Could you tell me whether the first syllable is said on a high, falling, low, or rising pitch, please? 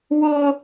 high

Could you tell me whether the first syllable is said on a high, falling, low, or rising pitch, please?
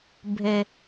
high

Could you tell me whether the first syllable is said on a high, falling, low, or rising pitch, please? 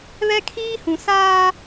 high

